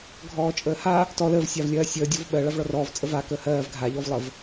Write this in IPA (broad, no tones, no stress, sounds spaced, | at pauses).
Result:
ɡʱ ɔː t͡ʃʼ əː h a | t ɔ l əː v sʲ a v lʲ ɜː sʲ əː dʲ ɔ v ɓ ɜ ɭ a v ɭ ɔ r ɔː v t͡sʼ ə v a k əː h ɜː v ɡʱ a ʎ ɔ v lˠ ə v